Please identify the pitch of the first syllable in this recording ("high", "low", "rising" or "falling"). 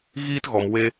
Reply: high